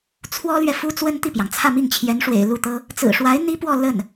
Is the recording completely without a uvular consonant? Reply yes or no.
yes